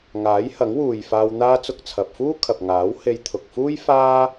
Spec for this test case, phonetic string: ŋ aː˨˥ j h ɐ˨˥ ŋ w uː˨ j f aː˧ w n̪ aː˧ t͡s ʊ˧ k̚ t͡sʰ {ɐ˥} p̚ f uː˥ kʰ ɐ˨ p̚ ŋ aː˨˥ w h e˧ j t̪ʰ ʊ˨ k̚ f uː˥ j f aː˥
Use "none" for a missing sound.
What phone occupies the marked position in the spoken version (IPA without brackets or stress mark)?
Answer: ɐ˨